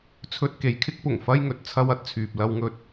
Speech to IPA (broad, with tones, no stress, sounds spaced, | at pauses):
t͡sʰ ɵ˧ t̚ k e˨ j kʰ ɪ˥ k̚ p ʊ˨˩ ŋ f ɐ˥ j ŋ ɵ˨ t̚ t͡sʰ ɐ˥ w ɐ˥ t̚ t͡sʰ yː˨ p̚ l ɐ˧ w ŋ ɵ˧ t̚